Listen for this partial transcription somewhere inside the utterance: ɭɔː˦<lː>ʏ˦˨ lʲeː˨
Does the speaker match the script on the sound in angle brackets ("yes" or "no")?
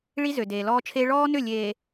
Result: no